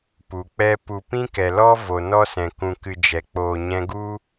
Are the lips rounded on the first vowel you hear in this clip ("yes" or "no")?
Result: yes